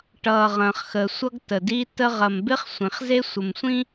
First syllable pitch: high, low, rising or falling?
low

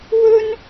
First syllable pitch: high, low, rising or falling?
high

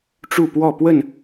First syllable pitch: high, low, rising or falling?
falling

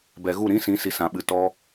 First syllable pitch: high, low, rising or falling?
low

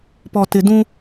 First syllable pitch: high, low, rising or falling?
low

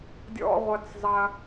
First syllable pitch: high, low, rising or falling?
low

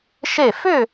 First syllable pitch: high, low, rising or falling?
falling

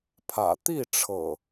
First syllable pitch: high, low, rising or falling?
low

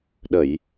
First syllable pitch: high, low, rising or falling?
low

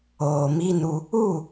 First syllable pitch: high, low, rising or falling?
low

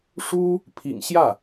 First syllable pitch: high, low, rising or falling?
high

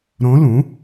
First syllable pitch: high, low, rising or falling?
rising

